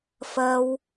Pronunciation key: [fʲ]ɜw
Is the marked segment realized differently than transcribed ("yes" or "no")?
yes